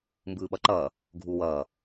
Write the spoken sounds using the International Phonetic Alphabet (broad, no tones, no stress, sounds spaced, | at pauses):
m b ɯː ɓ ʌ ǃ ʌː | ɡʱ u w ʌː